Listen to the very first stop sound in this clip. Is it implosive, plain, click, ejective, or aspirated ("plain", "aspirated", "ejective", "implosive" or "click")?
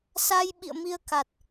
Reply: implosive